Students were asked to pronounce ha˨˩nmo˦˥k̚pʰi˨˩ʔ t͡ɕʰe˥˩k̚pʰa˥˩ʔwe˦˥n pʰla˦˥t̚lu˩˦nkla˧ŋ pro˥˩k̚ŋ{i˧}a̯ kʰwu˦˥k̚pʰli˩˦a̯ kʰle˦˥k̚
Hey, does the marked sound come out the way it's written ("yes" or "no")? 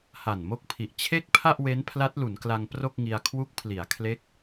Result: yes